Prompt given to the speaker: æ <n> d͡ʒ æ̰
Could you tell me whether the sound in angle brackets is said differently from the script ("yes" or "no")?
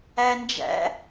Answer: no